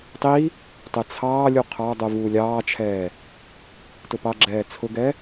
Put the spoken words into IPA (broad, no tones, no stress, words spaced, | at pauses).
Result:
tˤi | tˤɪt͡sʰɑːlʲu qʰɑdˤu vuːlʲɑːt͡ʃʰɛː | tʊpɑɡ͡ǁɛː t͡sʰʊɡɛ